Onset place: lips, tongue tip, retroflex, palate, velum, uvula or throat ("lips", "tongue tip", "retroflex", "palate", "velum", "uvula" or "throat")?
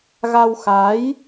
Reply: velum